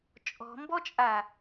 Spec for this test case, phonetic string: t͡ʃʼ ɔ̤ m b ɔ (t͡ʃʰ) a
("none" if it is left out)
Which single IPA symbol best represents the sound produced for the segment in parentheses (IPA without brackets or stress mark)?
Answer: t͡ʃʼ